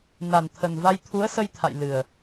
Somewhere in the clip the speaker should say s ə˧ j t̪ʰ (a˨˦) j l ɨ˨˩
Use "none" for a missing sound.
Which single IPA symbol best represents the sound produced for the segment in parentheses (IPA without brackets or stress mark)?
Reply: a̰˧˨